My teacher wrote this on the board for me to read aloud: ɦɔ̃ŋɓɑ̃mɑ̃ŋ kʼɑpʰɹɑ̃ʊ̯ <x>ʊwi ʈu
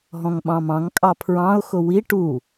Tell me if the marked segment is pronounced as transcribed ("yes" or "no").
yes